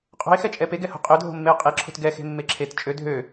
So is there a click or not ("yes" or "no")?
yes